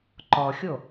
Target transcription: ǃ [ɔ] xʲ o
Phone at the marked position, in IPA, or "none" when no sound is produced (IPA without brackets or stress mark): ɔ